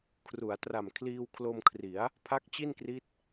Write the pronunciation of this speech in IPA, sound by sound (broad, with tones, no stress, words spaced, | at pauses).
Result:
kʰru˩˦a̯tra˨˩m kʰliː˧wkʰlo˧mkʰri˩˦a̯ | pʰa˦˥k̚t͡ɕi˥˩nkri˦˥t̚